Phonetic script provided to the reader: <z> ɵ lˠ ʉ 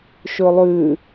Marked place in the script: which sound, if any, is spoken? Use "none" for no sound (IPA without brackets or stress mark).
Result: ʃ